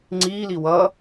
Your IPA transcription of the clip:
ŋ͡ǀ iː l i w ʌ

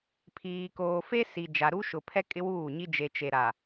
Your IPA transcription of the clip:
pʰ iː˨ k oː˨ f e˦ s i˨ d͡ʒ a˨ ɾ u˦ ʃ ʊ˨ pʰ ɛ˦ kʼ ɪ˦ w uː˦˨ ɲ i˦ d͡ʒ e˨ t͡ʃ e˨ ɾ a˨

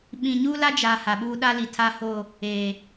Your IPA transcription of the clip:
ɓ ĩ˨ ɲ uː˦ l a˦ d͡ʒ a˨ h a˨ ɓ uː˦ ɗ a˦ l i˨ tʰ a˦ h o˦˨ | eː˨

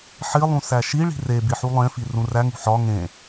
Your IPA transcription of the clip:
ħ i lˠ ũ s æ ʃ i ɭ i̤ r e b i ħ u lˠ ẽ f i r ũ r æ ŋ ṳ ħ ɒ ŋ ẽ

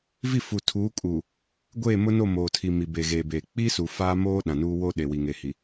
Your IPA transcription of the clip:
v i˦˨ f u˨ tʰ uː˨˦ kʼ uː˨ | ɡʷ eː˦˨ m ʊ˦ n o˦˨ m oː˨ tʰ i˨ m i˨ b e˨ ɣ e˨ b eː˨ k͡p i˦ s u˨ f aː˦ m oː˦ ɗ ã˨ n uː˦ w oː˦ ɗ e˨ w i˨ ŋ e˨ h i˨

